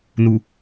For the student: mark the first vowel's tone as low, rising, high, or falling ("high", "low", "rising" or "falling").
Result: low